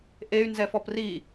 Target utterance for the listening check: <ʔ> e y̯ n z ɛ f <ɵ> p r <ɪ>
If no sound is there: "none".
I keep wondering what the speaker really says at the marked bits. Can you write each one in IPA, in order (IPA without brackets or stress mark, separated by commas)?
ʔ, ɔ, i